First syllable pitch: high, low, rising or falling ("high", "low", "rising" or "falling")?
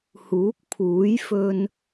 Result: rising